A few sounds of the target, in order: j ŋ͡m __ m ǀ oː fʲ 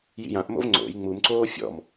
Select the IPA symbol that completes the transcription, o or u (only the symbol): u